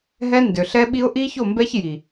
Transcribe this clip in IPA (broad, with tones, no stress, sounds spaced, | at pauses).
ɦ ɛ˦ n d ø˨ ɬ ɛ˦ ɓ i˦ ʊ̯ ʔ i˦ ç o˦˨ m b ɛ˦ ç j i˨